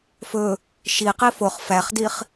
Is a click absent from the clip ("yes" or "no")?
yes